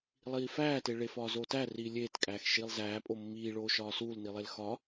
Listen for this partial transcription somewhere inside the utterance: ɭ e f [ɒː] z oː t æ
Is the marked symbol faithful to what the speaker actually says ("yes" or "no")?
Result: yes